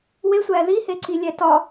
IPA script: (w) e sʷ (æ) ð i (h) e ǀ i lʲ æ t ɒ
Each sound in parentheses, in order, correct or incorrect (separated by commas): correct, incorrect, correct